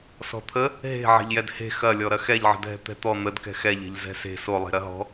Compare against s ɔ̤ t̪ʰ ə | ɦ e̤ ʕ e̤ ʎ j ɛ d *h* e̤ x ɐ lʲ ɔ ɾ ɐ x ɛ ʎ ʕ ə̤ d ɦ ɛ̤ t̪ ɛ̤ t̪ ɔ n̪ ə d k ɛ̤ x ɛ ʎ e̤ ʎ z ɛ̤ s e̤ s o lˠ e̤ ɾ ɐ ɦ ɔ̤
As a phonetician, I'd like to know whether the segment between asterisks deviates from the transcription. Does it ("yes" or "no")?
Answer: no